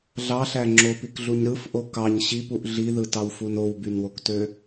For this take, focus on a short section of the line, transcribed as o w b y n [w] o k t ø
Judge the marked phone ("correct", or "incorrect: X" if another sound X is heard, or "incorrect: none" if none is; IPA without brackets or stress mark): correct